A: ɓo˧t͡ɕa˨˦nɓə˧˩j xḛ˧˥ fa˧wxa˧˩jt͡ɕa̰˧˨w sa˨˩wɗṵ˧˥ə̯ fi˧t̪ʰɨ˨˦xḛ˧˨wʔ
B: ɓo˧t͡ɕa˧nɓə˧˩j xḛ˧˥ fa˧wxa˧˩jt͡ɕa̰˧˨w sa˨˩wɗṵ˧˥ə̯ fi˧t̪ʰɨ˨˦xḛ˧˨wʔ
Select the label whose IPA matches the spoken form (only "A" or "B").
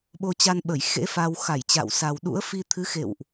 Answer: B